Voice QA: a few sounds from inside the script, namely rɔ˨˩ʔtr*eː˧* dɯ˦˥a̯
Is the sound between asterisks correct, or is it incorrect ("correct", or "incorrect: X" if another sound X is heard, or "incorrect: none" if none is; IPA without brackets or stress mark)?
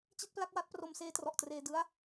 correct